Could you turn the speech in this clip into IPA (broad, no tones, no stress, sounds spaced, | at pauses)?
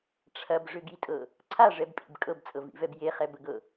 ʈ͡ʂʰ ɐ b ʐ ʏ ɡ i tʼ ɤ | ǀʰ a ʐ ɛ b pʼ ḭ b kʼ ɤ b t͡sʼ ɤ v ḭ v ɛ b j e χ ɛ b ə ɡ ɤ